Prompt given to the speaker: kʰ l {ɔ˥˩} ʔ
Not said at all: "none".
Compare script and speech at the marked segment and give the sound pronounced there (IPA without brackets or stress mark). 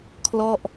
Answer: ɔ˥˩